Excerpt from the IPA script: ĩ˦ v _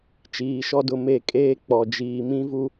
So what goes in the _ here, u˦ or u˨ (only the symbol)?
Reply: u˦